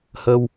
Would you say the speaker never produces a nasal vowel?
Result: yes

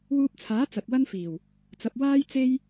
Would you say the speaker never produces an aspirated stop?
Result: no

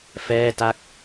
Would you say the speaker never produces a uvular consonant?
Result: yes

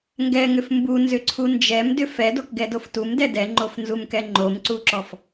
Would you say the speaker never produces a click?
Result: no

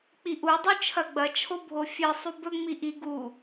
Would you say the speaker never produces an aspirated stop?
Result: no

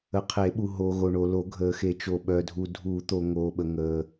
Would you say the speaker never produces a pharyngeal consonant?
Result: yes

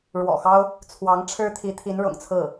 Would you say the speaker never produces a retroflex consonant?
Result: no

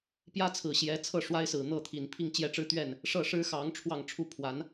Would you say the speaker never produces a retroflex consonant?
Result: no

